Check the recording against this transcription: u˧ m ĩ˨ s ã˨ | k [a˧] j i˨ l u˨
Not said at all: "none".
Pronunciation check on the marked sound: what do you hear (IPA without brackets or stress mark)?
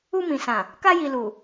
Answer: a˧